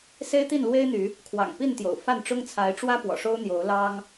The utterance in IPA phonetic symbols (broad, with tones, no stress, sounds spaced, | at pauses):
s e˦ ɪ̯ t̪ i˥˨ n l w e˦ ɪ̯ n̪ y˨˦ | kʰ w ɑ̰˨˩ ŋ p i˥˨ n t̪ j o̰˨˩ ʊ̯ f a˥˨ n ʈ͡ʂ ʊ˦ ŋ t͡sʰ a˨˦ ɪ̯ ʈ͡ʂ w ä˦ p w ɔ̰˨˩ ʂ o˦ ʊ̯ n̪ j o˨˦ ʊ̯ l ɑ˦ ŋ